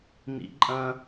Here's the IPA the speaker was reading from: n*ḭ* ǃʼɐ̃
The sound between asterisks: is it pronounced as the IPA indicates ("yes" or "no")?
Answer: yes